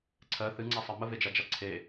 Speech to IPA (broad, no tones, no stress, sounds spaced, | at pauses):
ǀʰ ɜ θ ɨ ŋ͡ǀ a sˤ ɜ m ə v e d͡ʒ a d͡ʒ a ǀʰ e